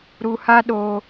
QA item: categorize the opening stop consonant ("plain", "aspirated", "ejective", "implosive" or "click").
implosive